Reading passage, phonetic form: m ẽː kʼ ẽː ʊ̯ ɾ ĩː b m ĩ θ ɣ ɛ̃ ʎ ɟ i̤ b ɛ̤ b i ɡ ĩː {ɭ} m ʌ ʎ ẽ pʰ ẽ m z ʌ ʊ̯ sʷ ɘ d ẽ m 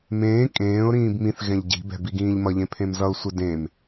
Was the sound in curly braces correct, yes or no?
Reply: no